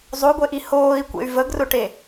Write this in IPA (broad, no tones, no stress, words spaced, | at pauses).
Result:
zˤoɡʷeʔi hoːi̯kʷḛy̯ vəɡrʊʈe